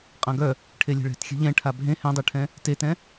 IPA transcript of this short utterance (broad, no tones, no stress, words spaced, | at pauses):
qʼãɡœ | ʈʰelʲe̤ɭɛ̤txʲɛ̤ ʎɛ̃ʈʰa bʱẽ hɛ̃dˤœʈʰɛ̃ | tetɛ̃